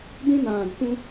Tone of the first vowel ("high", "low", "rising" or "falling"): high